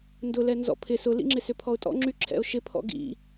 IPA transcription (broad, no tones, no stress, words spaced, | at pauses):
ndʊlɛ nzɔ̰pʰɪ sʊlḭŋ͡ǁɪsʏ pʰɔʊ̯tʼɔ̰ŋ͡ǁyǁʰɛ̰ʊ̯ ʃɪpʰɔ̰ ɡḭ